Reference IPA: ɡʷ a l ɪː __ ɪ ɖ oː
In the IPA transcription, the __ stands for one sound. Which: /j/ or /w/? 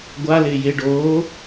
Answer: j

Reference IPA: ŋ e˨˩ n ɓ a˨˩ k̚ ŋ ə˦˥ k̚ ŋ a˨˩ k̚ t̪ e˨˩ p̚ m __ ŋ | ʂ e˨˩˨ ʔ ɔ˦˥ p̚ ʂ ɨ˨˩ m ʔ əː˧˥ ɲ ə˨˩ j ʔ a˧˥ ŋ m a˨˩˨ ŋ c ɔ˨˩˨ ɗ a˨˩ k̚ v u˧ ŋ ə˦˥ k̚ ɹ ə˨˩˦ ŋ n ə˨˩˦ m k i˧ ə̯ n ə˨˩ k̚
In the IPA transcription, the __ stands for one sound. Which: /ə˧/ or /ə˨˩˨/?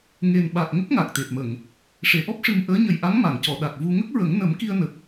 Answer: ə˨˩˨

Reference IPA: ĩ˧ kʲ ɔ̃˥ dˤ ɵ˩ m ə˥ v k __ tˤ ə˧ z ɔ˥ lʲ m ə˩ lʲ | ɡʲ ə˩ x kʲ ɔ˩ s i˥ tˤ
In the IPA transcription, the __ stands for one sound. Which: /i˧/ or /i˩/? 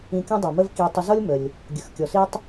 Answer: i˧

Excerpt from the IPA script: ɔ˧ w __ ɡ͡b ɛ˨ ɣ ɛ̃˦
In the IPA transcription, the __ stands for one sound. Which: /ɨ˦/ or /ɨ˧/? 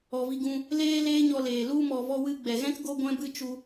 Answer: ɨ˧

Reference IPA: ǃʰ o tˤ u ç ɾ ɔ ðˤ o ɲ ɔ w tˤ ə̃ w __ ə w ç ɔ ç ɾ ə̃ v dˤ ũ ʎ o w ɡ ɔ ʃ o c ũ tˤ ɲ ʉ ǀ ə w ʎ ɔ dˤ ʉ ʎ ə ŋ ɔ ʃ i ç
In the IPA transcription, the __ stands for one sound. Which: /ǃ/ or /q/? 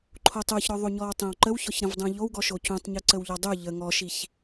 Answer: ǃ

